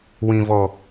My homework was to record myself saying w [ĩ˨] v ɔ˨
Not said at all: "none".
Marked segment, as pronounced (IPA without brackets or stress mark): ĩ˨